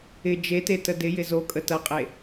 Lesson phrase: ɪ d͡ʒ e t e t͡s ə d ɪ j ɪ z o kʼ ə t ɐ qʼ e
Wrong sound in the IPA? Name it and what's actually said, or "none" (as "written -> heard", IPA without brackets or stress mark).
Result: t͡s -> t